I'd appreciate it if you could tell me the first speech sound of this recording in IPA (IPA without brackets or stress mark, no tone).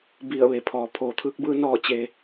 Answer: b